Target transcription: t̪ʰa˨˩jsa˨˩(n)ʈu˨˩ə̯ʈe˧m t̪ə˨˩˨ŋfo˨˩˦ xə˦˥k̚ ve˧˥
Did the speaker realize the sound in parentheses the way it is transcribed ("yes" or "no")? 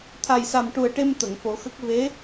no